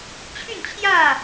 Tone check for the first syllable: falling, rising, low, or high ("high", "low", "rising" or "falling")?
falling